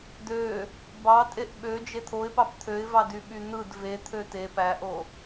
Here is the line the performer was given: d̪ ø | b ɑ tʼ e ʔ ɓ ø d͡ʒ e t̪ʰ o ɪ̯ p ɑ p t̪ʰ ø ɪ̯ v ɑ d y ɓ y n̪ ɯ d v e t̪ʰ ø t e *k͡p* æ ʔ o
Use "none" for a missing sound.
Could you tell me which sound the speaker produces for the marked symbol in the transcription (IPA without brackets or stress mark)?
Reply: p